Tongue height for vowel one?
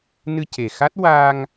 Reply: high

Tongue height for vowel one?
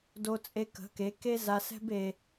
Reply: mid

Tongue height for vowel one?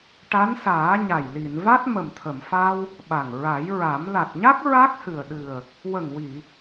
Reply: low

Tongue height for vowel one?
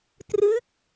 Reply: high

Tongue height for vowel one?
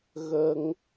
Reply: mid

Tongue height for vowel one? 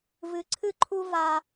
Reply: high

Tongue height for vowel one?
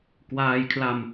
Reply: low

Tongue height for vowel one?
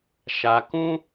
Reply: low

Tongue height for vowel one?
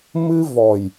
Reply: high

